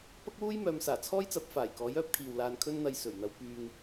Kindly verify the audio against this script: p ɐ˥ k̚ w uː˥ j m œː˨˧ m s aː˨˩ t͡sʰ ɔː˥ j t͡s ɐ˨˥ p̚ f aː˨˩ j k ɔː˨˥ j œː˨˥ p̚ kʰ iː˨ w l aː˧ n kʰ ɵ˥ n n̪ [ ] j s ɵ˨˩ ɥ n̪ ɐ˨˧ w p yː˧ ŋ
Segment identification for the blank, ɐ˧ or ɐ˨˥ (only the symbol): ɐ˧